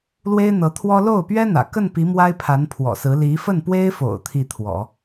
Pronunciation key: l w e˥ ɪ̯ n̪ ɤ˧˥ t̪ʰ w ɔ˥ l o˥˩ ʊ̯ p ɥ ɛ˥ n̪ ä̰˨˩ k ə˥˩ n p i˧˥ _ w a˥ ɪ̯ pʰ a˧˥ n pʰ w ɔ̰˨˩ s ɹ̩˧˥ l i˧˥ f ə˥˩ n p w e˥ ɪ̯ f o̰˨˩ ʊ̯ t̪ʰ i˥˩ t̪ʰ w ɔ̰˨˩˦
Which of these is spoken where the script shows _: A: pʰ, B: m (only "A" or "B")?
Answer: B